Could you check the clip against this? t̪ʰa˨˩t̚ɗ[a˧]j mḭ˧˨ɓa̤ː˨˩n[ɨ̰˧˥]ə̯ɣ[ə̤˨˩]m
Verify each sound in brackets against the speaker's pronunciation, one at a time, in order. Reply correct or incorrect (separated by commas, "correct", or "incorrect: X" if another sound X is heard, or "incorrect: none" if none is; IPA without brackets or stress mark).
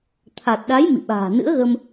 incorrect: a˨˦, correct, incorrect: ə˧